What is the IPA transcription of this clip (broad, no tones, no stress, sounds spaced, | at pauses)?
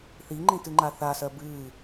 θ i ŋ͡ǃ ĩ t ɨ ŋ͡ǃ a θ a s ɜ b ɨː